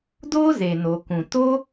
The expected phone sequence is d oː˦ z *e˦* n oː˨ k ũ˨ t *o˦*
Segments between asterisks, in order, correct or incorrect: incorrect: e˨, correct

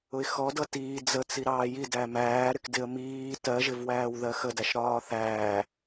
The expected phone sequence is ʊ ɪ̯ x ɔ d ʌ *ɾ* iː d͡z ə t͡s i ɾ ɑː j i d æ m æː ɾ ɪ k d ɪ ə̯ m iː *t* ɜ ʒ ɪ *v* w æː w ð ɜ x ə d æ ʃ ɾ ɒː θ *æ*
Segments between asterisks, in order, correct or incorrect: incorrect: t, correct, correct, incorrect: æː

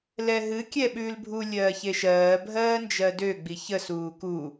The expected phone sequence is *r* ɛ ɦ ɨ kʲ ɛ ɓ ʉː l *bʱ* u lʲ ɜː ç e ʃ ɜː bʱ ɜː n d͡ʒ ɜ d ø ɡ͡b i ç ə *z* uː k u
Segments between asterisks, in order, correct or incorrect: incorrect: l, correct, incorrect: s

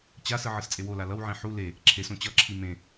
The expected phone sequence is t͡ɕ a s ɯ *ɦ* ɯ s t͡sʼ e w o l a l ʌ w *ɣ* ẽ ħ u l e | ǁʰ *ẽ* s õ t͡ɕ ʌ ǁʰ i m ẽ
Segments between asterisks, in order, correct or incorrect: incorrect: ʕ, incorrect: ʕ, incorrect: e

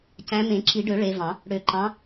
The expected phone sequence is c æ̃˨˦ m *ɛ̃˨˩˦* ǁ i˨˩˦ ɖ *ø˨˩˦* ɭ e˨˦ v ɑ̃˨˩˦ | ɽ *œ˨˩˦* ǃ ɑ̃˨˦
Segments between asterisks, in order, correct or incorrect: incorrect: ẽ˨˩˦, correct, incorrect: ø˨˩˦

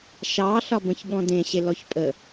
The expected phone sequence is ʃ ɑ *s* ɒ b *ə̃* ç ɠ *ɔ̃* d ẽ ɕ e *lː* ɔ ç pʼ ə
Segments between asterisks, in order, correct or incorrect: incorrect: ɬ, correct, correct, incorrect: l

